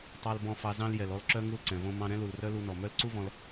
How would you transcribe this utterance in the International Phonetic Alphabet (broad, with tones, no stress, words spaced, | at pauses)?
tˤɑ˨lbɔ̃˨fɑ˨ zɑ̃˧ljɛ˨lɔ˧l ǁœ˧ ŋu˧lǀɛ̃˨võ˧ mɑ̃˧ɾɛ̃˦lu˨lrœ˦ lu˧nɔ˨mœ˦l ǀu˦vɔ̃˧l